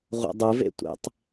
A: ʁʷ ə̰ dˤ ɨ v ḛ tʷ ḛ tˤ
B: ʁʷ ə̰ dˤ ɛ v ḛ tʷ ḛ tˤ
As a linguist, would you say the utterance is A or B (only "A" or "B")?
A